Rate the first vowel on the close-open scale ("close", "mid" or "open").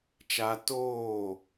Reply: open